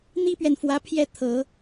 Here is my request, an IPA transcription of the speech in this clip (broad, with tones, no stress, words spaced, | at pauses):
n̪i˥pɥɛ˨nfwä˧˥pʰjɛ˥˩ t̪ʰɤ˨˩˦